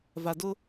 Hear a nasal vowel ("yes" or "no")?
no